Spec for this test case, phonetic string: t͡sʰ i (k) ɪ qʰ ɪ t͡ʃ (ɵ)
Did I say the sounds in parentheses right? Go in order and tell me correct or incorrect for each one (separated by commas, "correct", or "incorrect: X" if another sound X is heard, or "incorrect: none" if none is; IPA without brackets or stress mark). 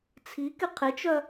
correct, incorrect: œ